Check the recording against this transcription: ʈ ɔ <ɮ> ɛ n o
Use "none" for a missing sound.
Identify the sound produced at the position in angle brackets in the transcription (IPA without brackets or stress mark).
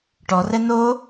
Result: r